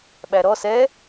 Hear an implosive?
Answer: yes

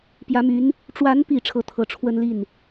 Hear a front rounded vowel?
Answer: yes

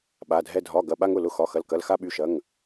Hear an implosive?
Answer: yes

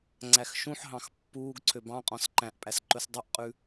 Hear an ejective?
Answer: yes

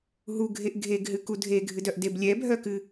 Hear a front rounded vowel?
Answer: yes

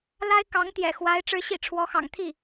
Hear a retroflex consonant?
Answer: yes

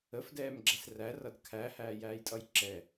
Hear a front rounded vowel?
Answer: no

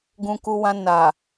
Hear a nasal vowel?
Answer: yes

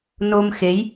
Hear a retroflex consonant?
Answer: no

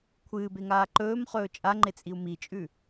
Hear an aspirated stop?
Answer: yes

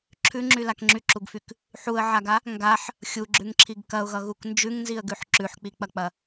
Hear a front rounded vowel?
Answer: yes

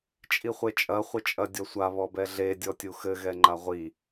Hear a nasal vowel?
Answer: no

